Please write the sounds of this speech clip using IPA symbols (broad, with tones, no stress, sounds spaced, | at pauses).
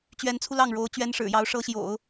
t͡ɕ ɥ ɛ˧˥ n t͡sʰ u˧ l ɑ˥˩ ŋ ɻ o˧˥ ʊ̯ t͡ɕ ɥ ɛ˧˥ n ʂ ɻ̩˨˩ j ɑ˧˥ ʊ̯ ʂ ɤ˧˥ ɕ j o̰˨˩˦ ʊ̯